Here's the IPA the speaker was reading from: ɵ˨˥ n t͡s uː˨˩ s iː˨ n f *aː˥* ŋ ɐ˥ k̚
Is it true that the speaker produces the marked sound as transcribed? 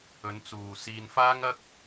yes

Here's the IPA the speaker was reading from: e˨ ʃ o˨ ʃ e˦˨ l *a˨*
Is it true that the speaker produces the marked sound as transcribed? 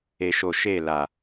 yes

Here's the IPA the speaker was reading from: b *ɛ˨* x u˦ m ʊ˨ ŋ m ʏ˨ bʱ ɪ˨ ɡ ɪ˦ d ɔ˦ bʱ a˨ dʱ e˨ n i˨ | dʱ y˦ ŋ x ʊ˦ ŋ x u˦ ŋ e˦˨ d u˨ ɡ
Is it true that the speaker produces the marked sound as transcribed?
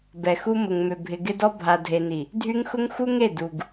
yes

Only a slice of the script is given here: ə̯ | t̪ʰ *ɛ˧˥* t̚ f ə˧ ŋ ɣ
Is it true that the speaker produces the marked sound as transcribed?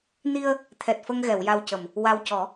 no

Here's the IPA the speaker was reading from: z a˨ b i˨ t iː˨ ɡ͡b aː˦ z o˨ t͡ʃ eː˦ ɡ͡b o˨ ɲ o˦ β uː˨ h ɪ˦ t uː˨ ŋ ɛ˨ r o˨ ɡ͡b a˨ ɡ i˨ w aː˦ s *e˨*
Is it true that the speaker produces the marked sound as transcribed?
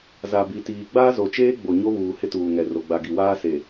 yes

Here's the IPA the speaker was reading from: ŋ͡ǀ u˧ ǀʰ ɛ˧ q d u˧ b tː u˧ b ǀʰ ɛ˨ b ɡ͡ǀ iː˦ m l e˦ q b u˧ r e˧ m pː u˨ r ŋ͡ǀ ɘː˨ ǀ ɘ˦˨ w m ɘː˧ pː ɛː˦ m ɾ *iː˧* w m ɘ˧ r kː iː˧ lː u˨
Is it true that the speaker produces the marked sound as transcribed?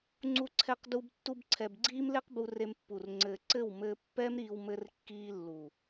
yes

